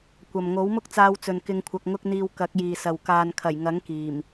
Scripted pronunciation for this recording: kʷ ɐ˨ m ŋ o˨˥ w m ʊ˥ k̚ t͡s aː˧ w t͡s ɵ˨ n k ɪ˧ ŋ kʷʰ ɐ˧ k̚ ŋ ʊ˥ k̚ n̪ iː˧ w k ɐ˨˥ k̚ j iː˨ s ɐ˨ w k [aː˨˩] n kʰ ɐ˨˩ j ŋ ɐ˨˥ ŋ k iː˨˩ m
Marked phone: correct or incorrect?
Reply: incorrect